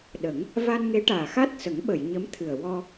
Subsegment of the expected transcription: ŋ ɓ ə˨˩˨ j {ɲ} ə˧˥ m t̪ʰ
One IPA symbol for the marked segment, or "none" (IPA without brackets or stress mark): ɲ